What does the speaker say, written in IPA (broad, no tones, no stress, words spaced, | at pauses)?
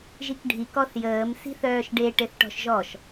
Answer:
ʒikɖʱik ɔθjəːm si̤θœːʃɖe ʈeθʈɔ̤ʃʒɔʃ